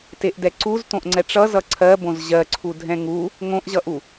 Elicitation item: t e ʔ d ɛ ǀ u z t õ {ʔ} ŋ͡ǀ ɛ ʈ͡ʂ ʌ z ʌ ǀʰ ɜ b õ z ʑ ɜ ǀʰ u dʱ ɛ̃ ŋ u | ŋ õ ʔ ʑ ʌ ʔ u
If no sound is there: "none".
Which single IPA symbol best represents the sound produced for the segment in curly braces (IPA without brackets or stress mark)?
ʔ